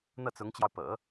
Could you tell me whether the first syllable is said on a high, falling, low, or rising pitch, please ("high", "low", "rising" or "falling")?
falling